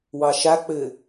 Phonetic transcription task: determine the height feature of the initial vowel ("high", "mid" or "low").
low